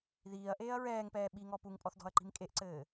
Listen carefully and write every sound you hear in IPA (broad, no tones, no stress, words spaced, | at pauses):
ðiːɐ̯ʔeːɐ̯ ɹɛːŋpɛː ɓiŋɔ puŋpʼɔθdɔ̤ɐ̯ǃi̤m kʼeʔǀɘː